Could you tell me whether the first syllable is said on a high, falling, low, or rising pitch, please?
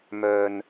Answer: low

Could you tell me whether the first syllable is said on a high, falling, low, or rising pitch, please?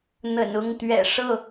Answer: low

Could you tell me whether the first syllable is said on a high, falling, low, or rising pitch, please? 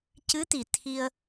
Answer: rising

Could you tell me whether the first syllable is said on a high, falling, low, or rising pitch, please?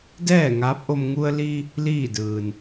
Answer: falling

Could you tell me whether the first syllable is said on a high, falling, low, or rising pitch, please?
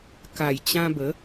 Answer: low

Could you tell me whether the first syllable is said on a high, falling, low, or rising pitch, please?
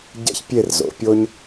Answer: high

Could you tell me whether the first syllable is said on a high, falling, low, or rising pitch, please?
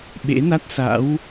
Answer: rising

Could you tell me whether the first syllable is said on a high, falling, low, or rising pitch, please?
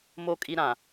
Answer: low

